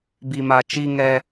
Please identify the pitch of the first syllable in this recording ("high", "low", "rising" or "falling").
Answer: low